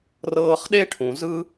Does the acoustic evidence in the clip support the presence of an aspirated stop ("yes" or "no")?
yes